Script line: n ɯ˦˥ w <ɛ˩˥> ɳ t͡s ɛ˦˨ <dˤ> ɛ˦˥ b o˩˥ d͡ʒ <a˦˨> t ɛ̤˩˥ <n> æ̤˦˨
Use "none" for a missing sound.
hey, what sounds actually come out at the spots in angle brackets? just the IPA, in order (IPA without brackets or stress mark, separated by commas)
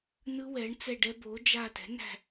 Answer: ɛ˩˥, ɖ, a˦˨, n